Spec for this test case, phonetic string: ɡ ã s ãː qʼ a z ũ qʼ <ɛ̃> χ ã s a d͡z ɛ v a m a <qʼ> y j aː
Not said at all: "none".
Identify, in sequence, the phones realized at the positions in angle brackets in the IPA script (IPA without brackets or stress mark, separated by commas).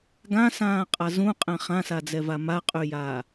ɛ̃, qʼ